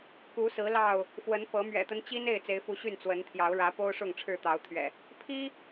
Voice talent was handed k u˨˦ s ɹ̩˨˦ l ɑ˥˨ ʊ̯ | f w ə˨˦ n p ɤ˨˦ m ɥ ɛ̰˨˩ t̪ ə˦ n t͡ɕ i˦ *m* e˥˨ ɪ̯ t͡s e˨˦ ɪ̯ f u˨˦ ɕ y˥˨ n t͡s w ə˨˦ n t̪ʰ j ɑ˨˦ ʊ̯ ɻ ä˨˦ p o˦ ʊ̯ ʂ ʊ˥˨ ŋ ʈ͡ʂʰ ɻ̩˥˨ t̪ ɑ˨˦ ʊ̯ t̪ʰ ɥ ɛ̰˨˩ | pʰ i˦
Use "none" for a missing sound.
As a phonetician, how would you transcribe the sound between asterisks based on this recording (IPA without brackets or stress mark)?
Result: n